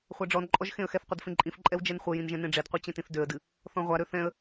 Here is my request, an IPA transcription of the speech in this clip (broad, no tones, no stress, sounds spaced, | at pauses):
χʷ a ɖ͡ʐ ɔ n ǃʼ ɔ ʒ x ẽ ə̯ x ɛ θ qʷ e d f ẽ ǃʼ ĩ f ǃʼ ɛ w d͡ʒ ɛ n χʷ ɘ j ĩ n ʒ ɛ̃ n ẽ ɖ͡ʐ e d qʷ i t͡ɕ ɛ̃ t ĩ θ d ø ə̯ d ɨ | θ ɔ̃ ʁʷ a ɾ ø θ ɛ̃ ə̯